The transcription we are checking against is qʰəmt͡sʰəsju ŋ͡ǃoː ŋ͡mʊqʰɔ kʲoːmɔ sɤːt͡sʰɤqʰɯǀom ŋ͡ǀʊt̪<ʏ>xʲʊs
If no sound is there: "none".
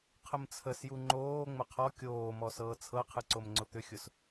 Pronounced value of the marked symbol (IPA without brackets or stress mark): ʏ